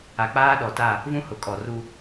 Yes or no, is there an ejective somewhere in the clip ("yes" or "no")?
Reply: yes